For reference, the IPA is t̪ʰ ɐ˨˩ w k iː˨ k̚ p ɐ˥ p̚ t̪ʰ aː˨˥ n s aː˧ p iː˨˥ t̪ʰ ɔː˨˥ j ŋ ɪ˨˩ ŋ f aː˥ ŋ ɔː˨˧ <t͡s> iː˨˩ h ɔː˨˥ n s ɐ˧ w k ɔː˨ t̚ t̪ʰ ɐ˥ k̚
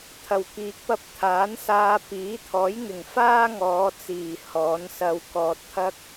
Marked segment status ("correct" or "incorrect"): correct